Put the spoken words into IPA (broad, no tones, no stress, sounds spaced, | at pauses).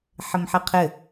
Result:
ħ ɘ m ħ ɘ qʰ ɘ